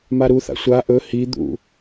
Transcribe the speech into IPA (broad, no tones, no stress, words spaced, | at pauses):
maɾuθa̰ sʷa ʔɵ hid̪ṵ